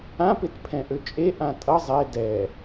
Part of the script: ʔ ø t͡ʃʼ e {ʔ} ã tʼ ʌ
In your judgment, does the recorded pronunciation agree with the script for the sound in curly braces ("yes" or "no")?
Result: yes